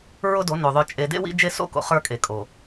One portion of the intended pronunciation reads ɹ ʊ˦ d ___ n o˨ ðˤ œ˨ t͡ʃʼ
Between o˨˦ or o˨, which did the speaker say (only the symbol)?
o˨˦